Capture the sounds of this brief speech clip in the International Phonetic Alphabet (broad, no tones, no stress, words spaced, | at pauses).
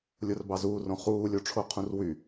lʲorbɑzuːrõ χuːlʲoʈ͡ʂʰo qʰũrwy